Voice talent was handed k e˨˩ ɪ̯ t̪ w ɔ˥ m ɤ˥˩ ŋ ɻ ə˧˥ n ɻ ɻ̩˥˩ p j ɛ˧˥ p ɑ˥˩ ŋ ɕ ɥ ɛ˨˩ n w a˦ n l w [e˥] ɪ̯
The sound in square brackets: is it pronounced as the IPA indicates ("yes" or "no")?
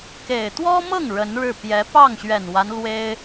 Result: yes